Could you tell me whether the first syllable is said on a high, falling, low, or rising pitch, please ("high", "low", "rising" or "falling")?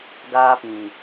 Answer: high